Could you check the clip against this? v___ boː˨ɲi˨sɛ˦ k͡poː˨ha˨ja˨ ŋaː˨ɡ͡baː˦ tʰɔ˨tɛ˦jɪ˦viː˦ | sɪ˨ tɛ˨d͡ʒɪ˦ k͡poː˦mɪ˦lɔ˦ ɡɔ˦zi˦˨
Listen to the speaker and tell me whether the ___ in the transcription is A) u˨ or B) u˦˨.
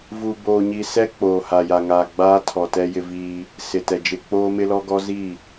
A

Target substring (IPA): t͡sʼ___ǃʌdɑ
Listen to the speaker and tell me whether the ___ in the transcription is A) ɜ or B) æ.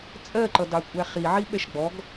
A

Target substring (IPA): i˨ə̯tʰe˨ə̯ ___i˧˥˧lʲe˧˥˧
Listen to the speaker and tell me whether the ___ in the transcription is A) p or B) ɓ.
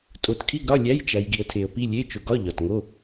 A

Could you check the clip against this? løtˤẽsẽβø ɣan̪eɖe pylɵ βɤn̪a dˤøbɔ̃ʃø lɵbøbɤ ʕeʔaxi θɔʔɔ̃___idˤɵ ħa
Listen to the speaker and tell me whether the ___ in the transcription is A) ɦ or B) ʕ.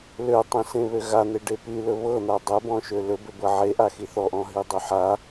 A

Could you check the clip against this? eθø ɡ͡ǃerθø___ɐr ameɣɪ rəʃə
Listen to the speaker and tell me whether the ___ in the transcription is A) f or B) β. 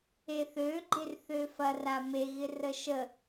A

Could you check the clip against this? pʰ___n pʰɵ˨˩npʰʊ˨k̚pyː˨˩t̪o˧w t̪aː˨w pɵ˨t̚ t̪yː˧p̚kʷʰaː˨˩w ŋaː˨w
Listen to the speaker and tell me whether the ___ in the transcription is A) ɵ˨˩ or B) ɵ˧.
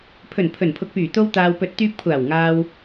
A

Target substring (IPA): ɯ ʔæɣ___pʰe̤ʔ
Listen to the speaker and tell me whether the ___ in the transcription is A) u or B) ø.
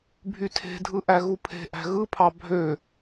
A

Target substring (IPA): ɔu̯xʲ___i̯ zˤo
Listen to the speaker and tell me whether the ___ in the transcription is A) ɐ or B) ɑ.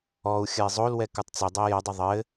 A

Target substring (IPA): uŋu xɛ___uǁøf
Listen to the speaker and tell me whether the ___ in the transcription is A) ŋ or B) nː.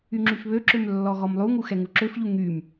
A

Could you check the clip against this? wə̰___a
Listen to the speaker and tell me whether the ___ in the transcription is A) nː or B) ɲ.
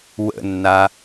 A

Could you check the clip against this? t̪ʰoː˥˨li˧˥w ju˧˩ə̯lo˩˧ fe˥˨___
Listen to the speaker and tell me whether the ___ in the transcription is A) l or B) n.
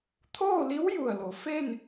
B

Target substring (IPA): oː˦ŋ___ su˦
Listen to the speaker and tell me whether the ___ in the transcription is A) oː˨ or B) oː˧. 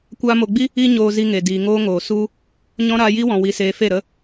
A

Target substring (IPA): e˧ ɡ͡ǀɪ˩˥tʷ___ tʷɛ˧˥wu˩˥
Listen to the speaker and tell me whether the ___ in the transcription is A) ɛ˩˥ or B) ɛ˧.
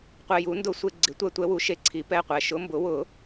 B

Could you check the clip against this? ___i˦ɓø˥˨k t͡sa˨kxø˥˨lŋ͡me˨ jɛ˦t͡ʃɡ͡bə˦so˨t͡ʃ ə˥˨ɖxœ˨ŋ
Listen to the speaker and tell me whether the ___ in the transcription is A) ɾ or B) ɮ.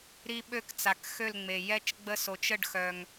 A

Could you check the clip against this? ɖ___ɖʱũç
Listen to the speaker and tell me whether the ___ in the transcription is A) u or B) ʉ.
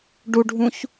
A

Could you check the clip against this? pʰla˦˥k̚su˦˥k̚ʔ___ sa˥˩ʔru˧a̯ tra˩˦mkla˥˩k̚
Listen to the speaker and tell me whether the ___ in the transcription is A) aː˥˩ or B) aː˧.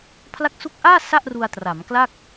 A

